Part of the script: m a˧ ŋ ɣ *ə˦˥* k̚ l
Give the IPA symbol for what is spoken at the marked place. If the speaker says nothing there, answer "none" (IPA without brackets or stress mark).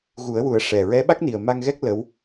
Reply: ɛ˦˥